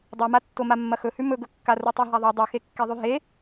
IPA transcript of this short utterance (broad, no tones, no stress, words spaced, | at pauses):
dˤumatːo mamːɐxɵhʉ mɵɡɵkːa rutˤeɦaðˤu dˤʉxekːeðˤʉ ɦe